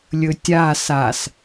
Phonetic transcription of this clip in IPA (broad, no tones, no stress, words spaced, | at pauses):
lʲɵtʲa sas